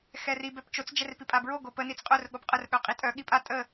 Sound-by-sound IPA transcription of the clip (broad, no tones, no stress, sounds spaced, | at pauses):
x ɛ r i b ɛ p t͡ʃ o t͡s d͡ʒ ɛ r p i pʼ a b ɹ o ɡ o p ə n i t͡s qʼ œ r ɠ o p qʼ ə r ɠ œ qʼ i tʼ œ ɠ i pʼ a tʼ ə